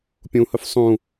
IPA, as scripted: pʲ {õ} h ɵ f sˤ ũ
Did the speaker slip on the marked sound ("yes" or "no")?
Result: yes